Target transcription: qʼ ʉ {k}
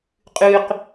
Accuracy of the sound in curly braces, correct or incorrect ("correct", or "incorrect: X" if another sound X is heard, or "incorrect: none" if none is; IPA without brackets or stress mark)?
incorrect: q